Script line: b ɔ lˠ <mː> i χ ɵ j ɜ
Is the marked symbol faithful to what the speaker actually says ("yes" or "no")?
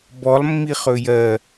yes